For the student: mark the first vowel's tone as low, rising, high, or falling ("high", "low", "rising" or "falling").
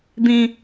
low